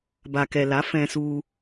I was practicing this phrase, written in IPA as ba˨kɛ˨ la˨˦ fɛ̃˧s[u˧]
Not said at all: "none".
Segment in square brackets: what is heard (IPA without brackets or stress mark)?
u˧